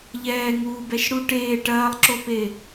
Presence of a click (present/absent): present